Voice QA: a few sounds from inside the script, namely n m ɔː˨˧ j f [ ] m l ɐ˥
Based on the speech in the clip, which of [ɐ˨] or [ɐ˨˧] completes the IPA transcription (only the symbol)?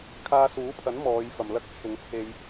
ɐ˨